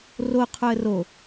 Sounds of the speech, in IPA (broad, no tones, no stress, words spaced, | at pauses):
ro qʰoə̯ro